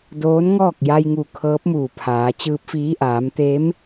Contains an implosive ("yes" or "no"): no